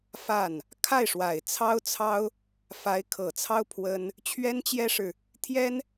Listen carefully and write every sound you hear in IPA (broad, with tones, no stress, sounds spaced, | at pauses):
f a˥˩ n | kʰ a˥˩ ɪ̯ ʂ w a˨˩ ɪ̯ t͡sʰ ɑ˥ ʊ̯ t͡sʰ ɑ˥ ʊ̯ | f a˧˥ ɪ̯ kʰ ɤ˨˩ t͡sʰ ɑ˥ ʊ̯ pʰ w ə˥ n | t͡ɕʰ ɥ ɛ˥ n t͡ɕ j ɛ˥ ʂ ɻ̩˨ | t̪ʰ j ɛ˥ n